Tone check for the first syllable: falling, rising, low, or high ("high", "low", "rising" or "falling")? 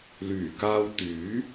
low